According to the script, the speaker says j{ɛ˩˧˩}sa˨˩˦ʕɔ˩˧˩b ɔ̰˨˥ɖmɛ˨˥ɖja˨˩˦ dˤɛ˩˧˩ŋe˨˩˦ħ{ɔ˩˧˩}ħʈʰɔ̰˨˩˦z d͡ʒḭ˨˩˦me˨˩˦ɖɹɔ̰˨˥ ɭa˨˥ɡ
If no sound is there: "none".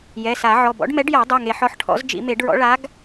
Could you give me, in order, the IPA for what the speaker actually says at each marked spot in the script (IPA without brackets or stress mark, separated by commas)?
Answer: ɛ˩˧˩, ɔ˩˧˩